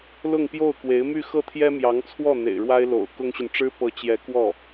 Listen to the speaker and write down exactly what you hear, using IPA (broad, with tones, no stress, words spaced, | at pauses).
lʊ˥˧ŋ pjo˥˩ʊ̯kwe˧˥ɪ̯my˥˧ xɤ˥˩t̪ʰjɛ˥mjɑ˧˥ŋt͡sʰwɔ˥˩ n̪ḛ˨˩ɪ̯ɻwa˥ɪ̯ lo̰˨˩ʊ̯kʊ˥ŋɕy˨n ʈ͡ʂɻ̩˥pɤ˧˥ t͡ɕjɛ˧˥ kwɔ˥˩